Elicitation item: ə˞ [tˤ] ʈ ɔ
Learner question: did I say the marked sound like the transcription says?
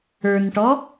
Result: no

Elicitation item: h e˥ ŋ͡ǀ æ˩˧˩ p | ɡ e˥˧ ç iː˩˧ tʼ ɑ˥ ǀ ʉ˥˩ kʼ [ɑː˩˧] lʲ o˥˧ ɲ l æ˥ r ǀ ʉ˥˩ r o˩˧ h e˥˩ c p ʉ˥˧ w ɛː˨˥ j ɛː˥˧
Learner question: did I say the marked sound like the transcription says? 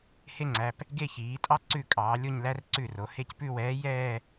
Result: yes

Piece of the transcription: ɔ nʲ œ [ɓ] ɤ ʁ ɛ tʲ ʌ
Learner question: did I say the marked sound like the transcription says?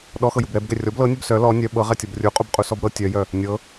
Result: yes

